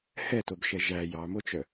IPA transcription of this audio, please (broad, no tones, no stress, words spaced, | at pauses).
hɛtobʃɛ ʒæ jɑmot͡ʃœ